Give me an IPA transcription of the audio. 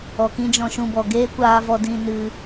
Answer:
ɔ˨ k ĩ˦ d͡ʒ ɔ̃˧ ʃ ũ˧ b ɔ˨ ɡ eː˦ kʷ aː˧ v ɔ˧ d ĩ˧ n ɨ˧

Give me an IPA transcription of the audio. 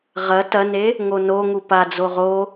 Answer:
ʁ ɐ t ɐ n e | ŋ o n o ŋ u p a d͡z o ʁ o

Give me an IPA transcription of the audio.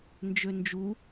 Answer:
n d͡ʒ ø n d͡ʒ u

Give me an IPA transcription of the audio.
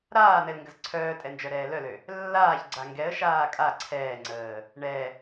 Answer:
ɾ aː n̪ ɛ l ŋ ɡ ə z ǀʰ œː tʼ ɛ n d͡ʒ œ ɾ ɛː l œ l ø | lː aː ç ɡ͡ǀ a ŋ ɡ ɛ ə̯ ʃ aː kʼ a ǀʰ ɛː ŋ͡ǀ əː | ɳ ɛ

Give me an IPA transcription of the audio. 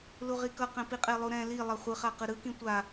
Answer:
l u ʁ i k ʌ q ɛ̃ p i qʼ e lˠ u ɾ ɛ̃ l i lˠ ʌ χʷ ɯ χ a q ɯ ɾ ɯ k ĩ tʷ a

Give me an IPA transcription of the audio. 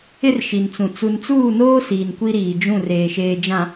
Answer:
ɪ˦ r ʃ i˨ n t͡s ũ˨ t͡s u˨ n t͡s uː˦˨ n oː˦ s iː˨ n kʷ i˦ ɾ iː˨ d͡ʒ ũ˦˨ r eː˨ ʃ eː˨ d͡ʒ ã˨

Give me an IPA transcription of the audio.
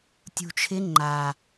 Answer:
tʲ ṳ t͡ʃʰ ɪ ŋ͡ǃ a

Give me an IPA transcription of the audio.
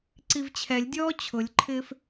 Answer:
ǀ i v t͡ɕʰ ɛ lʲ dʲ ɔː t͡ɕʰ ʊ lʲ ǃʰ ɪː f

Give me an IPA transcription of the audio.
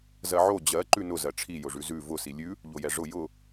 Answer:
z ɜ ʕ o d͡ʑ ɜ ǃ ʉ n ʊ z ɜ ʈ͡ʂʰ i j ʊ ʐ ʉ z ʉ v ʊ s i lʲ ʉ | ʎ o j ɛ ʐ ʊ j ʊ

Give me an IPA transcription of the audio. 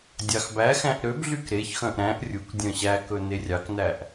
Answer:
dʲ ɑ x b æ x æ̃ ʔ ɾ ø b ɮ y k ɾ e ç x œ̃ ʔ ɾ æ̃ ʔ rʲ u k dʲ œ̃ ɕ æ k ɵ n e rʲ ɑ k n æ ʔ

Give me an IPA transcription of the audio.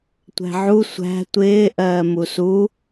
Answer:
tʷ æ̤ ʕ u sʷ æ̤ tʷ ɪː ʔ ɜː m u s u

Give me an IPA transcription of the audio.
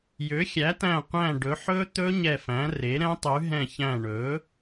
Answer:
j ø˩˥ xʲ æ˩˥ t æ̃˧˩ qʷ æ̃˧˩ ɖ ɵ˩˥ ħ ɵ˦˥ t̪ ɵ˦˥ ɲ ɛ˧˩ f æ̃˩˥ r e˩˥ ɾ ɛ̃˦˥ tˤ ʉ˩˥ ɦ ɛ̃˧˩ ç æ̃˧˩ ɳ ɵ˩˥

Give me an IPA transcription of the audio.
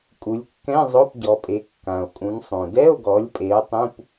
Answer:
kʼ u˩˧ lʲ kː ɛ̃˧˥˧ zˤ o˧˥˧ p ɟ ɔ˩˧ pʼ e˩˧ kː ã˩ o̯ kʼ ũ˩˧ n sˤ õ˩ d ɛ˧˥˧ o̯ ɡ ɔ˩˧ lʲ pʼ e˩˧ o̯ tˤ ũ˧˥˧ p

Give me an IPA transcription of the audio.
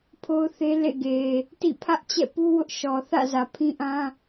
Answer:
pʰ o˦ ʊ̯ θ e˦ l ḛ˦˨ ɡ e˨ | t ḭ˦˨ pʰ ä˦ ʔ t͡ɕ ɛ̰˦˨ p u˦ w ʊ˦ ʔ ʃ ɔ˨ θ ä̰˦˨ z ä˨ pʰ ĩ˦ ʔ ã˦

